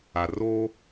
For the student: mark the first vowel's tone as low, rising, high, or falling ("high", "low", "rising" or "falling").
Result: low